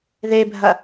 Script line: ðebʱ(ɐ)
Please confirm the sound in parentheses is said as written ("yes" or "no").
yes